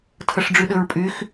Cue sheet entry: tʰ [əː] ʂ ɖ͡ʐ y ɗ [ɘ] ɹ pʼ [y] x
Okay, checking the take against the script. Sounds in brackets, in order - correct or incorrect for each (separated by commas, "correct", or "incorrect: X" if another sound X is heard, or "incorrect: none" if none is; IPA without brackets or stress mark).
incorrect: ə, correct, correct